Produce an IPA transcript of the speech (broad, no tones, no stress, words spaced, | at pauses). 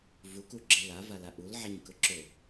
vukuɡ͡ǁe lavala ʔulʕaɲkʊ ǁʊ